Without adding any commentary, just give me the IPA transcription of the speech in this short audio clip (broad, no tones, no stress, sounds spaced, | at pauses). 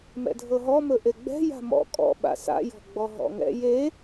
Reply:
m ɛ̰ dʱ ɤ ɦ ɔ m ɵ ʔ e ɡ͡b ɛ̤ j a̤ m ɔ̰ kʼ ɔ̰ ɓ a̰ s a̰ j ɔ̤ ɡ͡b ɔ ɦ ɔ̰ ŋ ɛ̰ j e